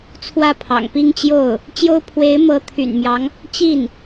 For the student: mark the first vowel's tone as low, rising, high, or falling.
falling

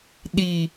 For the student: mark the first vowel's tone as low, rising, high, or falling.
low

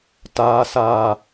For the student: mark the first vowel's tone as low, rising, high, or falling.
low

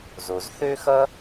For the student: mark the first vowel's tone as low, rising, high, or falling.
low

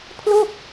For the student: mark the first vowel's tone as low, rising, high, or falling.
falling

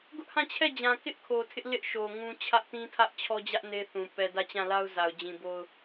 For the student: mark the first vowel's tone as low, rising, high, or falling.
high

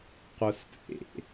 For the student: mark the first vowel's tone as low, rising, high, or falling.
low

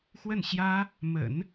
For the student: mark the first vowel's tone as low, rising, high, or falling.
falling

